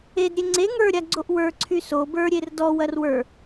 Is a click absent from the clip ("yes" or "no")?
no